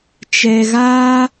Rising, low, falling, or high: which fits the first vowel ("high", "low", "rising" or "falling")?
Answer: low